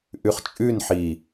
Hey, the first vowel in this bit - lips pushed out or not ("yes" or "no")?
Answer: yes